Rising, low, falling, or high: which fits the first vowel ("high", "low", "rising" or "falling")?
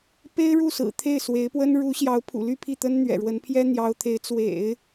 high